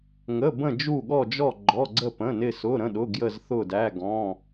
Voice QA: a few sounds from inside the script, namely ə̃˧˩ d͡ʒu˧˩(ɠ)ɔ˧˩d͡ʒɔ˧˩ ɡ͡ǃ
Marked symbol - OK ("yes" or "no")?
yes